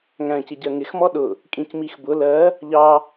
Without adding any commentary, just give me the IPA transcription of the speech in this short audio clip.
ŋ æ̃ c ɪ ɟ ɜ ŋ ɪ x m ɔ ɗ ʊ | kʼ ĩ c m i x b ʊ l ɜ | ʎ ɑ

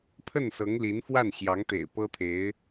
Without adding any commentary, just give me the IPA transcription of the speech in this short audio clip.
t̪ʰ ə˥˩ n s ɤ˧˥ ŋ l i˧˥ n f w a˥˩ n ɕ j ɑ˧˥ ŋ t̪ ḛ˨˩ ɪ̯ p ɤ˥ t̪ʰ e˧˥ ɪ̯

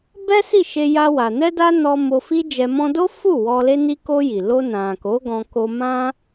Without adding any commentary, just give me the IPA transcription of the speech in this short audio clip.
b ɛ˦ s i˦˨ ʃ e˧ j a˧ w a˨ n ɛ˧ d a˧ n ɔ˧ m o˧ f i˦ d͡ʒ ɛ˧ m ɔ̃˧ d o˦ f u˦˨ w ɔ˧ l e˦ n i˦ k o˧ j i˨ l o˧ n ã˨ k o˨˦ ɡ ɔ̃˧ k o˧ m ã˦

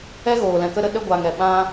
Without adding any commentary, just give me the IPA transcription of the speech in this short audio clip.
ɛ˦ ɣ oː˨ l ɛ̃˨ k ə˧ ɾ ə˧ ɗ ə˧ ɡʷ a˨ ŋ ɛ˨ ɓ ã˦

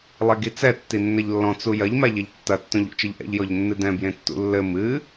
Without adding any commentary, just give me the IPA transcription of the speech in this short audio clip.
lˠ e ɡ i t͡s ɛ tː i nː ɐ ʎ lː ɔ̃ t͡s u j ɐ ʎ m a ʎ ɛ ʎ tː ɐ tː õ ʎ o̰ t͡ʃ ɐ ʎ ʔ ɛ̰ ʎ j ɔ ʎ nː ɨ d ɛ̃ b j ẽ tː ṵ lː ɘ m ɨ

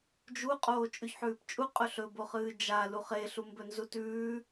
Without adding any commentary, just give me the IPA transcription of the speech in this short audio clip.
d͡ʒ u qʼ oː t͡ʃʼ ʉ ç ħ ʉː p t͡ʃʼ u qʼ ɵ ɬ ɵ b o χ ɨː d͡ʒ a l u χ e ɬ u m b ɵ n z u t ʉː

